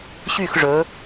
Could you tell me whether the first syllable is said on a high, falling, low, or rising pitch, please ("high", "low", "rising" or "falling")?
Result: falling